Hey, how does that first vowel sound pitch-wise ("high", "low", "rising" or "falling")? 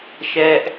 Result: high